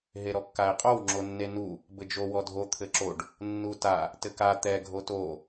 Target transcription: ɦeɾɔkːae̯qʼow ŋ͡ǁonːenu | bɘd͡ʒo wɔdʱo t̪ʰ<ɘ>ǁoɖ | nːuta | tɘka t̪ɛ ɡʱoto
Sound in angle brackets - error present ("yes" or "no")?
no